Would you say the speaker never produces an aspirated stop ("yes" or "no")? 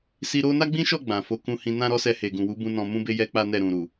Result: yes